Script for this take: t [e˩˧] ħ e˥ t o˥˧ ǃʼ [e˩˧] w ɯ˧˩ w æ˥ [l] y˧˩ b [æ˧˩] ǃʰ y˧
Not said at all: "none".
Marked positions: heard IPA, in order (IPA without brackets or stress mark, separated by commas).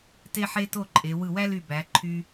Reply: e˥, e˩˧, l, æ˩˧